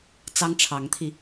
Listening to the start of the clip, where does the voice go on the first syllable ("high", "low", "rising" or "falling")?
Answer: high